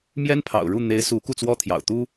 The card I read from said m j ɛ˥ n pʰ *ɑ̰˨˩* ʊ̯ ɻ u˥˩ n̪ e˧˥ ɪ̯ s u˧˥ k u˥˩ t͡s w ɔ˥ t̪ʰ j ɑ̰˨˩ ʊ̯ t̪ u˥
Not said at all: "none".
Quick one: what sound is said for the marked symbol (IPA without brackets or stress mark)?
ɑ̰˨˩